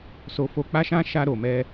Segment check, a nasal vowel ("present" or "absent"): present